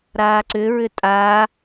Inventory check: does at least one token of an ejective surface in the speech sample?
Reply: yes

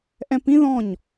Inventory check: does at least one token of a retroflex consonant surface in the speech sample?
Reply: no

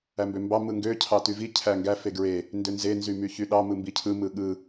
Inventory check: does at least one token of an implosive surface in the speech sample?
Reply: yes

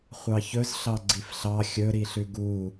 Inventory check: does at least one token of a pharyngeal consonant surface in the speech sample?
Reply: no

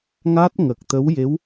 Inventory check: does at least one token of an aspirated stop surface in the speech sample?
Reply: no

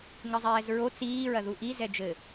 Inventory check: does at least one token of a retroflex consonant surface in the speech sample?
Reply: no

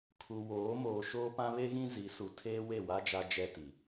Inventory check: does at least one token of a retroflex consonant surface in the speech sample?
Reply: no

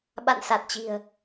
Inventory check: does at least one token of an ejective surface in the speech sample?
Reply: no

